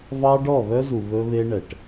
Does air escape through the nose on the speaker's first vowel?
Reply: no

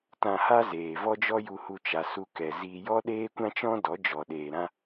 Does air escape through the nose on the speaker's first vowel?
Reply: yes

